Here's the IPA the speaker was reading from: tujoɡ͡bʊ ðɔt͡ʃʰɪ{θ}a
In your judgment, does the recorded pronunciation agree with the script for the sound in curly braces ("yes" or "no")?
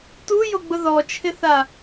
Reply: yes